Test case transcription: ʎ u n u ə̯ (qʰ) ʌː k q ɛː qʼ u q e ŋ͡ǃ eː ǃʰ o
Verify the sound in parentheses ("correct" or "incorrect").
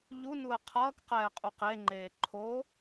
correct